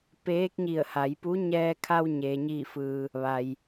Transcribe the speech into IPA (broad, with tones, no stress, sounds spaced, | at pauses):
p eː˧˥ k̚ ɲ i˧˩ ə̯ h a˩˧ j p u˧˥ ɲ ɛː˧ kʰ a˧ w ɲ eː˩ ɲ iː˧˩ f ɯː˩ | ʋ a˩ j